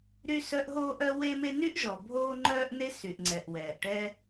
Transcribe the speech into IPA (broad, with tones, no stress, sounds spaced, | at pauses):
ɾ y˥ s œ˥ ʔ ɦ oː˥ ʔ œ˥ w e˥ m e˥ n y˥ ʔ ʒ ɔ˩ bʱ oː˥ ŋ͡ǃ œː˥ ʔ n e˥ s y˩ ʔ ŋ͡ǀ ɛ˩ ʔ w ɛː˩ ʔ ʈ ɛ˥